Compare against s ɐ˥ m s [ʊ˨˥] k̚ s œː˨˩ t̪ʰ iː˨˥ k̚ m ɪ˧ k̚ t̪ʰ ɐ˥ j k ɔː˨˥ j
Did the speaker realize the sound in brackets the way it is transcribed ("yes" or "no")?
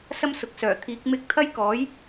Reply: no